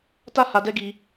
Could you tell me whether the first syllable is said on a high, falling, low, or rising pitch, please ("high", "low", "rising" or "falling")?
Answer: high